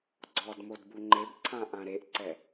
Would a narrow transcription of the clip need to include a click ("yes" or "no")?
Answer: yes